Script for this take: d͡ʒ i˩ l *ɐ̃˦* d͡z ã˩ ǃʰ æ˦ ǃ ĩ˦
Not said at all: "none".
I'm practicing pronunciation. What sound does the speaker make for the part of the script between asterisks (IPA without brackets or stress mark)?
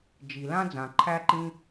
ã˦